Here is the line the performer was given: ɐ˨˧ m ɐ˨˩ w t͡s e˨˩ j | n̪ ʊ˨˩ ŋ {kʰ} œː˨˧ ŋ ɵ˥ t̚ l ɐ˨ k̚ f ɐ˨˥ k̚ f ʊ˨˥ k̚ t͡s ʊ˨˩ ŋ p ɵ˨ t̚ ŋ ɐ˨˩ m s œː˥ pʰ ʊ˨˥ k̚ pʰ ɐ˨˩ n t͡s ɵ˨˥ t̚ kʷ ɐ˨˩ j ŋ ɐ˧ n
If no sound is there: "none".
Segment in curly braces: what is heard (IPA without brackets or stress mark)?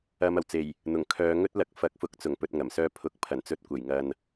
kʰ